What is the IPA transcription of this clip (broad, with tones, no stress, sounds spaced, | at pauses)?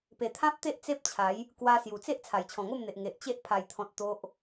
p e˨˩ t̪ʰ ã˦ p̚ t̪ e˦ ʔ t͡s e˦ p̚ t͡ɕʰ a˨˦ j | k w a˧ s j u˨˩ t͡s e˦ ʔ t͡sʰ a˨˩ j t͡ɕʰ ɔ̃˨˩ ŋ o˥˧ m n̪ e˨ ʔ ŋ e˨ ʔ t͡ɕ e˦ ʔ pʰ a˨˩ j t̪ʰ ɔ̃˨ t̚ t̪ o˦ ʔ